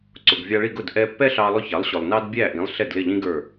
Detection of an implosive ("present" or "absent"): absent